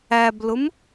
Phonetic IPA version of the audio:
æ b l ʊ m

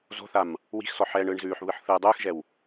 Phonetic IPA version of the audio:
z o̤ θ a m | w i̤ x s ɔ ħ ɛː ɳ ɯː ɳ z ʉː ħ β ɯ ħ θ ɯː dˤ ʉː x ʒ ɛ w

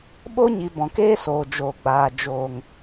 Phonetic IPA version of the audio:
ɓ o˦ ɲ i˨ b ɔ̃˨ k eː˦ s oː˨ d͡ʒ oː˨ ɡ͡b aː˨ d͡ʒ oː˨ ŋ

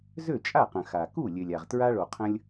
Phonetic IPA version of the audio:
z ø˥˩ t͡ʃʼ a˥˩ q ə̃˩ x a˩ k u˥˩ lʲ ø˩ lʲ a˩ ʁ t ɹ a˧ ɭ o˩ qʰ ə̃˧ lʲ

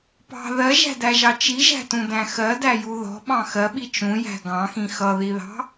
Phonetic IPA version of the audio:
p ɑ̤ ð ɜ ʒ æ̤ d æ ʒ ɑ t͡ʃ i ʒ æ̤ t ũ d æ̃ x ɜ d æ j u ð ɔ̤ ɓ ɑ̃ x ɜ ɓ i t͡ʃ ũ j æ̤ ɡ ɑ̃ x ĩ x ʌ ð i ð ɑ̤

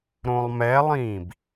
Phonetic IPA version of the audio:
ɾ õ lˠ m ɛ lˠ ĩː b

